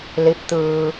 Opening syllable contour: rising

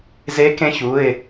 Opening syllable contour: rising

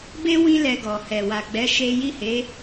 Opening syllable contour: high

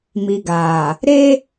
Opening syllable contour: low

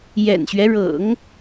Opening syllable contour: low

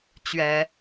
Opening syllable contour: rising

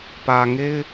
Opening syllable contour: low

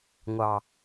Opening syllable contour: low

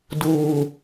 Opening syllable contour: low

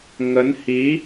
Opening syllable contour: rising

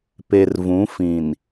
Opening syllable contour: low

